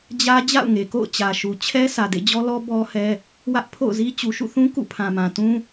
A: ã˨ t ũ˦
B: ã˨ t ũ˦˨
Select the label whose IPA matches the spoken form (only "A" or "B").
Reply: A